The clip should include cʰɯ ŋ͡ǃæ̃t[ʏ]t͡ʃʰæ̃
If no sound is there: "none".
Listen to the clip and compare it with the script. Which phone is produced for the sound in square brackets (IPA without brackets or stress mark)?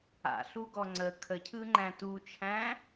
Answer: u